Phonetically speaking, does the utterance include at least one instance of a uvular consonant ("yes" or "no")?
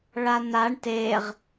yes